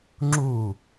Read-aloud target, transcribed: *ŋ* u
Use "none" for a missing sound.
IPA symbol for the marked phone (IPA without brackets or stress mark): ŋ͡ǁ